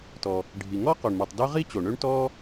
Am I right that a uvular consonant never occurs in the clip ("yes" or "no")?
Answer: no